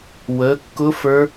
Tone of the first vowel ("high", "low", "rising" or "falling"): rising